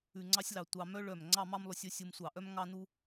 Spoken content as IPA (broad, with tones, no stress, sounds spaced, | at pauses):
ʉ˧ ŋ͡ǀ ɑ˥ sʲ l ɑ˧ tʷ ɑ˧ m œ˥ ɭ œ˧˩ m ŋ͡ǀ ɑ˥˧ m ɑ˥ m lˠ ʉ˧ sʲ ɵ˥ sʲ u˧ m sʷ ɑ˧˩ ʔ œ˥ m ŋ ɑ˥ n u˥